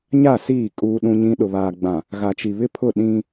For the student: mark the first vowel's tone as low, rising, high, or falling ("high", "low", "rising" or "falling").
falling